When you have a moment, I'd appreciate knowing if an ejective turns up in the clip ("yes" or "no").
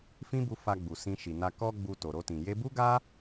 no